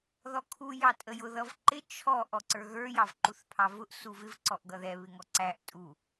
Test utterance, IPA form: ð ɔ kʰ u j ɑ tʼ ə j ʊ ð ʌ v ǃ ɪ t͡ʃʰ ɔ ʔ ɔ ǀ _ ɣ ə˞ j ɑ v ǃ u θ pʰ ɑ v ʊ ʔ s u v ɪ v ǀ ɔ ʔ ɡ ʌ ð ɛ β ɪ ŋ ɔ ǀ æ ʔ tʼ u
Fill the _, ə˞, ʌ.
ə˞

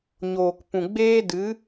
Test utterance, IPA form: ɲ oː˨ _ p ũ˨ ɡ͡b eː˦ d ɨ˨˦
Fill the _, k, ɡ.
k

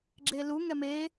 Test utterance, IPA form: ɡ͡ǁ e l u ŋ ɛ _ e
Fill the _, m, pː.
m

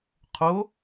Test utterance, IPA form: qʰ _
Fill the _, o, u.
o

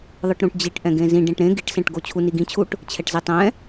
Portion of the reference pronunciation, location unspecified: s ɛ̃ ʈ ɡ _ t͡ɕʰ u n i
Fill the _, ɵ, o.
o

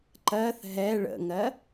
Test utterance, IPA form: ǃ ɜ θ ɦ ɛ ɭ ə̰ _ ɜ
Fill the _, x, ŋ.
ŋ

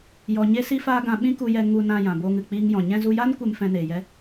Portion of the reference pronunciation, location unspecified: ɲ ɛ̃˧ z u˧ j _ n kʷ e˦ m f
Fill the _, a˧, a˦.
a˦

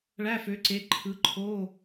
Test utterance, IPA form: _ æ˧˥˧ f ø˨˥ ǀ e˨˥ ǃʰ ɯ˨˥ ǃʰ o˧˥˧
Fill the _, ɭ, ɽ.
ɭ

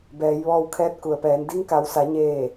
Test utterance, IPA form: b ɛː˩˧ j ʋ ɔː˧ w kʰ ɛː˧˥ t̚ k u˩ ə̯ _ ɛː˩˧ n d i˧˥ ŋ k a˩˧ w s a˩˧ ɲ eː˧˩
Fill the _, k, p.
p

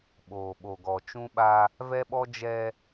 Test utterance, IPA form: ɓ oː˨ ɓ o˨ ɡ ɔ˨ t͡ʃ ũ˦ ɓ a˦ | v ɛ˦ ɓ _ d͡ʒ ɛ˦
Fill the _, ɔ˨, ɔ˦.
ɔ˦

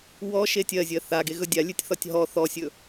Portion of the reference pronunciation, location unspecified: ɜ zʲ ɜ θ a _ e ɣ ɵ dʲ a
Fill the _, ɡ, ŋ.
ɡ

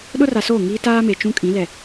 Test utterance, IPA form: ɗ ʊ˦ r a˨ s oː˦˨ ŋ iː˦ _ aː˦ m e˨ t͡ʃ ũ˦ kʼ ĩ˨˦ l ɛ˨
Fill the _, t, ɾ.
t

